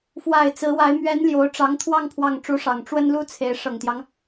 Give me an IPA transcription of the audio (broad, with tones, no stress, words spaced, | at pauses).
fwa˨˩ɪ̯ t͡sɹ̩˧˥wa˧˥ɪ̯ mɥɛ˧˥n ljo˧˥ʊ̯ʈ͡ʂɑ˧˥ŋt̪ʰwɑ˥˧ŋ pʰwɑ˥˩ŋ ʈ͡ʂu˧˥ʂɑ˨˩ŋ ʈ͡ʂwə˥nlu˥t͡sʰe˧˥ɪ̯ ʂɤ˨˩ŋt̪jɑ˦ŋ